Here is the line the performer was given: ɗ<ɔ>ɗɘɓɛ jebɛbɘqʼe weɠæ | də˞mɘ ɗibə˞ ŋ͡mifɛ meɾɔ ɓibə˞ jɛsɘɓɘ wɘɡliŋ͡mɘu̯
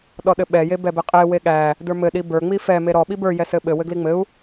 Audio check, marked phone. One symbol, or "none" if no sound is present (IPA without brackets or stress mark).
ɔ